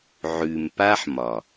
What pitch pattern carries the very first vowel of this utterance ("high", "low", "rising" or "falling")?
low